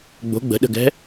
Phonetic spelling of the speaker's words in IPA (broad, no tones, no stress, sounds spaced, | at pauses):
ɡ͡b o̤ ɡ͡b ə̤ ɗ ə̤ ɡ ɛ̤